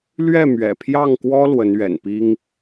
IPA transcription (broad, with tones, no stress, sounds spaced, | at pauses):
l ɥ ɛ˥˩ m ɥ ɛ̰˨˩ pʰ j ɑ˥˩ ŋ k w ɔ˥ l w ə˧˥ n ɥ ɛ̰˨˩ n p i˥ ŋ